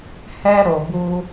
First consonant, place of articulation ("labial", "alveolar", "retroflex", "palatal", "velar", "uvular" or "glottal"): glottal